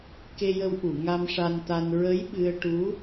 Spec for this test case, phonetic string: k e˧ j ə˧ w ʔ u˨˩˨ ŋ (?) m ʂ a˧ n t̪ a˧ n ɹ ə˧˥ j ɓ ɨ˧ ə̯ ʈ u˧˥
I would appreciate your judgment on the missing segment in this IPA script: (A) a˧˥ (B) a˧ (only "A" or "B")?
B